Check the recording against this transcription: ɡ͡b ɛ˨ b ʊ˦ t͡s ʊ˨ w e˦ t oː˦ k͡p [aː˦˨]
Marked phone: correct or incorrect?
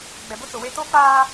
incorrect: aː˦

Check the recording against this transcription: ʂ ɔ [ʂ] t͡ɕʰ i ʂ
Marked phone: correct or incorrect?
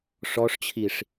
correct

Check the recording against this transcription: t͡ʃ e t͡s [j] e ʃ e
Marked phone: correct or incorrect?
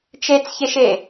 incorrect: ç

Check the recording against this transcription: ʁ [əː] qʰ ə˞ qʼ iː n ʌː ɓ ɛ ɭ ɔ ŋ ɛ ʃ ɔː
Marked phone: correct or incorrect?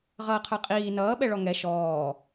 incorrect: ʌː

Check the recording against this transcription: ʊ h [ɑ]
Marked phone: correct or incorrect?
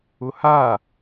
incorrect: a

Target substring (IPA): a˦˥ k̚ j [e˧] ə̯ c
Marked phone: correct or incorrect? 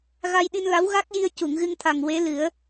incorrect: i˧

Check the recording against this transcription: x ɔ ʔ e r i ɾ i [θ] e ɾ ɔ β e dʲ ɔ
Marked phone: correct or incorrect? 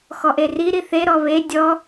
correct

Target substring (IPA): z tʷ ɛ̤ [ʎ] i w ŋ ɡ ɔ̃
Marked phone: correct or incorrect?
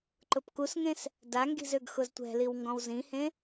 incorrect: l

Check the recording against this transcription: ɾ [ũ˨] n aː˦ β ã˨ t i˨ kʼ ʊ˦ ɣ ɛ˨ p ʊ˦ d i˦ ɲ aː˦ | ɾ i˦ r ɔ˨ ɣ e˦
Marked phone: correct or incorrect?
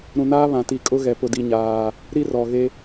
correct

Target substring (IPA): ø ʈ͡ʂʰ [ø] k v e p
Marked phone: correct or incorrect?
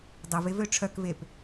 incorrect: œ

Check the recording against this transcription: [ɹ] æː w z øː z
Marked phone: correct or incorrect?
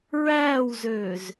correct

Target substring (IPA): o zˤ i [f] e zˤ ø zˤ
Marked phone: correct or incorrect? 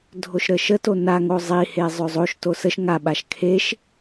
incorrect: h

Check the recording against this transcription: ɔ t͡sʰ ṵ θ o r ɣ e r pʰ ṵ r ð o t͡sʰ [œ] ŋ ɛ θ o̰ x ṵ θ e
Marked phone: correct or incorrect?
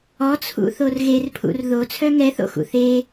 correct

